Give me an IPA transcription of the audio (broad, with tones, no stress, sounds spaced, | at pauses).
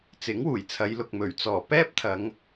t͡s ɪ˨˥ ŋ w uː˨˩ j t͡sʰ ɐ˨˧ j l ʊ˨ k̚ m ɵ˨˩ ɥ t͡s ɔː˨˩ p ɛː˥ p̚ t̪ʰ ɐ˨˧ ŋ